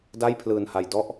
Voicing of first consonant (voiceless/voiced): voiced